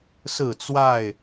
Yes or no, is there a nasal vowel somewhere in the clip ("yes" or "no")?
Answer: no